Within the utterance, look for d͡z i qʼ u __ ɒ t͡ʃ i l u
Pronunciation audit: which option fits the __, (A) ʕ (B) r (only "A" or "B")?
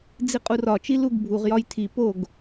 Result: B